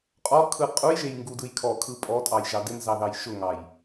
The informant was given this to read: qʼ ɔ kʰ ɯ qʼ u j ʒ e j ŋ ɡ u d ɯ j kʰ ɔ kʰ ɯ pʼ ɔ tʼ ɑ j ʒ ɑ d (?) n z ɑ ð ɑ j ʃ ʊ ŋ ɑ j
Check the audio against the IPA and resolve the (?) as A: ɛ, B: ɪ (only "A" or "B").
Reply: B